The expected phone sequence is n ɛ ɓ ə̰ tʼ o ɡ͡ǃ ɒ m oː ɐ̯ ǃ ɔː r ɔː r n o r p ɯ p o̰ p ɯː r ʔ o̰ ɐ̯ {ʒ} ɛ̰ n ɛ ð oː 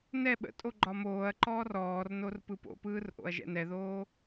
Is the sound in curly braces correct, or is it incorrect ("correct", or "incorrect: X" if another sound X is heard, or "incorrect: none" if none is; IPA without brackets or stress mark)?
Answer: correct